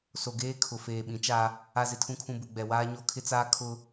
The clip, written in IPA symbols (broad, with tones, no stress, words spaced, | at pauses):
so˨ ɡeː˦kʰʊ˨ feː˨ɓĩ˨˦t͡ʃa˦ | a˨zɪ˨tʰũ˨kʰũ˨ bu˨ɡ͡bɛ˨ waː˦ɲo˦ kʰɪ˦t͡saː˦ kʰʊ˦